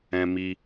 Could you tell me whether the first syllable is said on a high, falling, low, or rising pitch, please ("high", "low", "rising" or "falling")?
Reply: high